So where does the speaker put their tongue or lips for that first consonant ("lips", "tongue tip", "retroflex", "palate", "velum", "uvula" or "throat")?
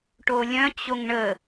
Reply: retroflex